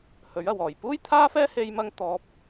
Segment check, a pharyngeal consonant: absent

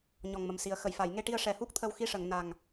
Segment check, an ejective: absent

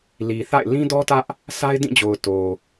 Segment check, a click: absent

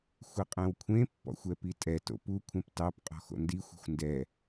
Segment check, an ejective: present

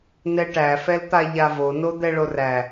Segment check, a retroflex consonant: present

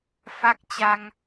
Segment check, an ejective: absent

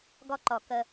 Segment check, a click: present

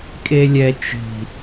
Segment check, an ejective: present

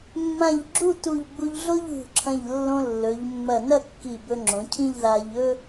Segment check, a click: present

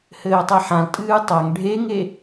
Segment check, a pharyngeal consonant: present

